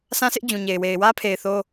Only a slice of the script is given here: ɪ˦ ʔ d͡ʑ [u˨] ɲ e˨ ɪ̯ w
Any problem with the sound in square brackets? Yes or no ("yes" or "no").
yes